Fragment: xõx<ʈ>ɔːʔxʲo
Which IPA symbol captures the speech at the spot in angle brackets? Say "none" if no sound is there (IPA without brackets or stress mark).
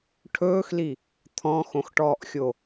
ʈ